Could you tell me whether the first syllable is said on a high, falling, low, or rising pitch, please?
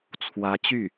rising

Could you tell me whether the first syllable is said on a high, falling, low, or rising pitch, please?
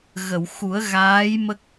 low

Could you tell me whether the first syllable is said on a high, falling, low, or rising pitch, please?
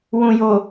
low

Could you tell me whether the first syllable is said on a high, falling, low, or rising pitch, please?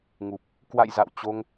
low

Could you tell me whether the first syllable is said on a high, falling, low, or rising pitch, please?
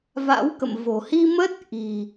rising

